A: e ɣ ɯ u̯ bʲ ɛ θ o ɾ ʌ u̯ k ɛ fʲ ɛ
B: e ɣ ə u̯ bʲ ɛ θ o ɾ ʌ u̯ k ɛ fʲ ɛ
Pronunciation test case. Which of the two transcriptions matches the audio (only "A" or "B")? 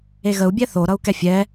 B